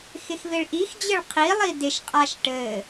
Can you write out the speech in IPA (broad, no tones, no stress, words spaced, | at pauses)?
xɪxveɭʔixd͡ʑɘɭ qʰilˠi dɪʃqʼaʃ ʈɘ